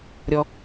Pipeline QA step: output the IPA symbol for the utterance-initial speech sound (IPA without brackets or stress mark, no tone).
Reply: ɾʲ